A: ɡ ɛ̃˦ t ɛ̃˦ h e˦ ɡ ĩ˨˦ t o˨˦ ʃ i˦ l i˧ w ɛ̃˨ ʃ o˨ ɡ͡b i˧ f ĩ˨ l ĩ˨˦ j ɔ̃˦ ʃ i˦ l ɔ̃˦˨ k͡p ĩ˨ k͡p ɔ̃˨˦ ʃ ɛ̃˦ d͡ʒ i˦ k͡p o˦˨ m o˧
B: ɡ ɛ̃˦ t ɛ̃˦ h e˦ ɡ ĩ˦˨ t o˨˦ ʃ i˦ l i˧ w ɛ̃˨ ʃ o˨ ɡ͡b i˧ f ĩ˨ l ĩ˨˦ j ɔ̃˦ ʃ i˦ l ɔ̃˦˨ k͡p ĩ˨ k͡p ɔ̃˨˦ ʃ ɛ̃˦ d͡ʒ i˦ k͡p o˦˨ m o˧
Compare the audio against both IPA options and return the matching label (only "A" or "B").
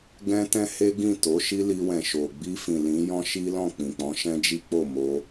B